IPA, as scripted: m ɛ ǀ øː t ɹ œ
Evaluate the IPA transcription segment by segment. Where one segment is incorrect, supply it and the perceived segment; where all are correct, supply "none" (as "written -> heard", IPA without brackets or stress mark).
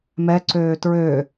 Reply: œ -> ø